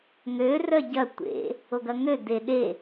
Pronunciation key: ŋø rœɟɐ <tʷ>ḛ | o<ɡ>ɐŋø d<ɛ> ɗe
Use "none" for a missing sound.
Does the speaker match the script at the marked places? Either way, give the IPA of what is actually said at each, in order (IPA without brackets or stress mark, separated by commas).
tʷ, ɡ, e